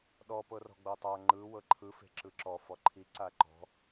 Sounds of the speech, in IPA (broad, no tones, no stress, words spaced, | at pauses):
ɗɔ pɤrɔ̤ɡ͡bɤtˤa ŋ͡ǃɯ wɤǃʰɯ fe̤ǁɯǁɔ fɔǃʰi ǀaǃɔ̤